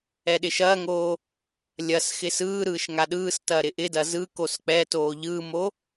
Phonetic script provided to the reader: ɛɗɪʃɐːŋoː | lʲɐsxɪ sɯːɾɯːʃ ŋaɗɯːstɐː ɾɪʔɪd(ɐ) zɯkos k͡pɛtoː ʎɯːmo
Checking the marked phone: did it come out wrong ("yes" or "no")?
no